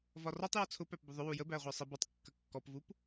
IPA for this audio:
v ɒ r ɔ tˤ j ɒ t͡sʰ ʊ p æ p b ʊ ðˤ ʊ w u j ə b æ ʁʷ ɜ sˤ ɪ b ɒ tˤ kː ə kː ɔ p v u p

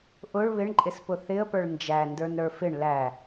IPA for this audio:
ʔ ʊ ɭ β ɪ ɳ ǃʼ ɪ s p ʊ θ ɪ ə̯ p ə˞ ɭ n d͡ʒ æ n d ə˞ n ɾ ə˞ f ɪ ɳ l æ

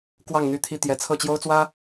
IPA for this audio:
k w ɑ˥˨ ŋ n̪ y˥˨ t̪ʰ i˥˨ t̪ j ɛ˨˦ t͡sʰ ɤ˥˨ t͡ɕ j o˦ ʊ̯ t͡s w ä˦

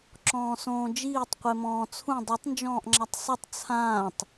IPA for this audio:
ǁ ɔ̃ː s õː d͡ʒ iː tˤ qʷ e m ɔ̃ː t͡sʰ ũ dˤ u tˤ n d͡ʒ ɔ̃ː ʔ ŋ͡ǁ a tˤ sˤ ɨ tˤ t͡sʰ ãː tˤ

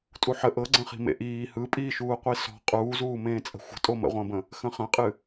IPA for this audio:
tʼ u ħ ə ʔ ɤ ɡ͡ǀ ə̃ χ i̤ m ḛ ʔ iː h ɯ pʼ iː ʃ uː qʷ i s ɔ̤ qʼ uː z uː m ẽː t͡sʼ ə̤ xʷ ə̤ tʼ o m ə̰ ʁʷ ə̃ː b ə̃ | x ə̃ χ ə̃ qʼ ɨ

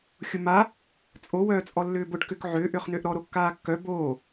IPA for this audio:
xʲ ʊ m a | t͡sʼ o w œː t͡sʼ ɔ lː ʏː b ʊ ɖ k ʏ k ʕ ʏː ʔ ʏː χ n ʏː ʔ ɾ ɔ ɾ o kː aː kː œ b oː

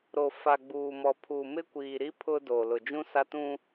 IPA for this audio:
ɾ o˨ f a˨ ɡ͡b uː˨ m ɔ˨ pʰ uː˨ m ɪ˦ kʷ iː˨ ɾ i˦ pʰ ʊ˦ d oː˨ l ʊ˨ d͡ʒ ũ˦ s a˦ t ũ˦

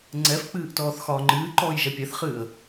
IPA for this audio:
ŋ͡ǀ ɛ f k͡p ɨː ʔ t ɔː θ x ɒː ŋ͡ǃ ɨː ǃ ɔː j ʒ ɛ pʲ ɛ θ χ ɨː ə̯

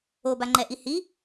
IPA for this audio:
o b a ŋ͡ǃ ɛ ʔ i h i

